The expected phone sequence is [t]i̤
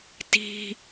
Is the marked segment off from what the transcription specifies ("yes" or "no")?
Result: no